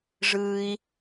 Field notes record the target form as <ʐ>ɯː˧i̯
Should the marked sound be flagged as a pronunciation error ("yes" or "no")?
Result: no